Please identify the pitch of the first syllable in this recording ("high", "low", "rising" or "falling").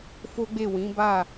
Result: high